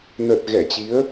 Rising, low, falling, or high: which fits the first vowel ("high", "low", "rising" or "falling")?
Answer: low